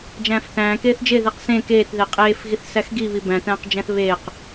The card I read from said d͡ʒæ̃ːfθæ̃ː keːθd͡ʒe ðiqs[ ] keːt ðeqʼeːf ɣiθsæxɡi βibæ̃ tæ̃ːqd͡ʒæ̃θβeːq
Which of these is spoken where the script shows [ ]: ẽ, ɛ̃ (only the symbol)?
ẽ